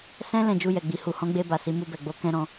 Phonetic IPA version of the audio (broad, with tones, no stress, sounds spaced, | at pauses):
s ɛ̃˦ l ɛ̃˦˨ d͡ʒ u˧ j ɛ˨ ɡ͡b i˨ h u˨ h ɔ̃˨˦ ɡ͡b e˧ b a˨ s i˨˦ m u˧ b ɛ˨ ɡ͡b o˨˦ k ɛ̃˦ ɾ ɔ̃˧